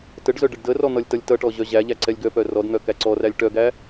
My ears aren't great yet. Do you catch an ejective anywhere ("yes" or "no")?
no